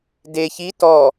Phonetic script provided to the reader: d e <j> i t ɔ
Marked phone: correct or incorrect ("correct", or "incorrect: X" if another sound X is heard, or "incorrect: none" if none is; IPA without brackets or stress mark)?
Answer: incorrect: ç